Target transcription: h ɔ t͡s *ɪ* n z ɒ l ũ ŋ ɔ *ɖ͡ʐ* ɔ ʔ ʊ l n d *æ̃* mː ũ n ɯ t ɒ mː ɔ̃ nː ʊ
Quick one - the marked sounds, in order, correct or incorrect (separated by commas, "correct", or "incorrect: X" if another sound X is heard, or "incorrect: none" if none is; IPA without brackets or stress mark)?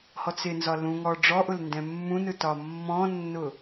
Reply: correct, correct, incorrect: ɛ̃